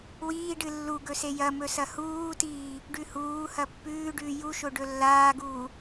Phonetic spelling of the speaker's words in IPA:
w iː ɖ ɨ lː u ɡ ɵ s e j ɐ m ɵ s ɐ h uː t iː | ɖ ʉ h uː h ɐ pː ʉː ɖ ʉː j u ʃ o ɖ ɵ lː aː ɡ uː

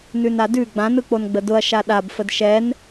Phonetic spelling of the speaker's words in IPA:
n ʉ n a d ʉ ɡ͡b ã n ɯ k͡p o n ɡ͡b ə d ʊ ɐ̯ ʃ a ɗ a b f ə d ʃ ɛ n

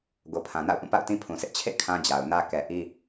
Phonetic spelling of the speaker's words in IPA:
ɡ o˨ pʰ ã˨ n a̰˦˨ ʊ̯ ʔ ũ˦˨ p a̰˦˨ ʊ̯ t ĩ˦ pʰ ũ˨ s ɪ˦ ʔ t͡ɕʰ ḛ˦˨ kʰ ã˦ d͡ʑ a˨ ʊ̯ n ä˦ k ɛ˨ ʔ i˦

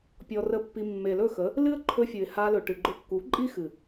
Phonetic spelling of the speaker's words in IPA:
pʲ ɔ˧ r ə˦˨ pː i˧ mː e˨ l ɵ˦˨ x ə˨˦ | l ɨ˦ ə̯ ǃʰ ɵ˧ fʲ ɨ˨ ɪ̯ h a˧ l ɵ˨ ʈ ɨ˨ ɡ͡ǃ ʊ˧ kː u˨˦ ǃʼ i˦ x ɨ˨

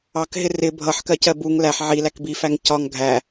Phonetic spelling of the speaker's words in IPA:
ɑ k ɦ ɪ r ɪ bʱ ʌ ħ k ɜ c ɜ b u ŋ l æ ħ ʕ i l æ k b i f æ ŋ c ɒ ŋ ɡʱ æ

